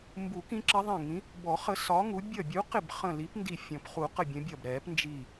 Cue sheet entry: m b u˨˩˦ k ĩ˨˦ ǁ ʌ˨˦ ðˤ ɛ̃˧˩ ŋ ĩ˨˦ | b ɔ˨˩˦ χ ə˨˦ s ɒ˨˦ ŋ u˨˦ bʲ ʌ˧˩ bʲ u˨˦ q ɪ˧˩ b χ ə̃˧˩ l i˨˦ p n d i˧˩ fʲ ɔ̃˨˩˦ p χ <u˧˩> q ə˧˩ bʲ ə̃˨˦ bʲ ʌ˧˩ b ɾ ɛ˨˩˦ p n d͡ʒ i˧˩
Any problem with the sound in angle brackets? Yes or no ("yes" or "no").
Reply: yes